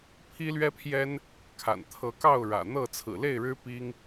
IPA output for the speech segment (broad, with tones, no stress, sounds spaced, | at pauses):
pʰ i˦ l ɥ ɛ˦ pʰ j ɛ˦ n | kʰ a̰˨˩ n t̪ʰ ɤ˨˦ k ɑ˥˨ ʊ̯ ɻ ä̰˨˩ n̪ ɤ˥˨ t͡sʰ ɹ̩˨˩ l e˥˨ ɪ̯ ɻ ɻ̩˦ p i˦ ŋ